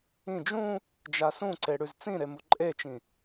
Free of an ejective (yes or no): no